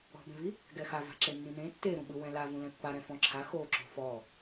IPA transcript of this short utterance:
ɔ̤ b ẽ v i | ɡ ɛ x a v a̤ ǁ e nː ĩ n ẽ tː e ɾ ũ ɓ ɯ w ɛ̃ l a v ũ l ɛ̃ pː a ɾ ɛ̃ f ɔ̃ ǁʰ a x o ǁ o̤ f ɔ

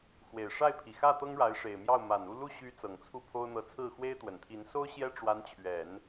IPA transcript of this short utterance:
x w e˨˩ ɪ̯ ʂ a˥˩ ɪ̯ pʰ i˨˩ x ä˥˩ t̪ ɤ˥ ŋ ɻ a˧˥ ɪ̯ ʂ e˨˩ ɪ̯ m j ɑ˥˩ ʊ̯ m a˨˩ n u˥˧ l u˥˩ ɕ y˧˥ t͡s ɤ˨˩ ŋ t͡sʰ u˥˩ pʰ o˥ ʊ̯ n̪ ɤ˧˥ t͡sʰ ɹ̩˥˩ x w e˥ ɪ̯ t̪ w ə˨˩ n t̪ʰ i˧˥ n s o˥ ʊ̯ ɕ j ɛ˥ ʈ͡ʂ w a˧˥ n t͡ɕʰ ɥ ɛ˨˩˦ n

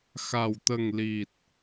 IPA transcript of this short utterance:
x a˨˩ w t̪ ə˨˩ ŋ l i˨˩ t̚

